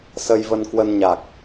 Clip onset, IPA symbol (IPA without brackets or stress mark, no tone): s